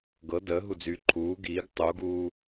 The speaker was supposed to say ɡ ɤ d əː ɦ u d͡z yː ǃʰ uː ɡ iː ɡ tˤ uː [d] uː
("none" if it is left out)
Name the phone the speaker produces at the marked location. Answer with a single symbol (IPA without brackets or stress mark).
ɡ